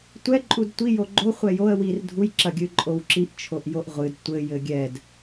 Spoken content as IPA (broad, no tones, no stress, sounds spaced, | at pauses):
tʷ ɛ ǃʼ u d tʷ i j o ɡ͡ǃ o χʷ ɛ j o ə̯ w i r dʱ u j ǁ ɐ ɡʲ ɨ ǃʼ o w ǁ i ʔ t͡ʃʰ o ʔ j o ʔ ʁʷ ɨ d tʷ ɘ j ɘ ɡʲ ɛ d